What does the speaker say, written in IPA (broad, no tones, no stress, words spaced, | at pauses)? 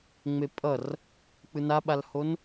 ŋ͡mepʼʌr | k͡pɯnaɓalhon